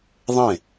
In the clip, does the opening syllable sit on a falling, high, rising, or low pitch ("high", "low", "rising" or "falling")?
falling